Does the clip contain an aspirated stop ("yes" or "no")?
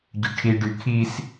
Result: yes